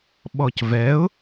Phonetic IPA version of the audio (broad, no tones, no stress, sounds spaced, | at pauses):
ɓ ɔ c v ɛ ʊ̯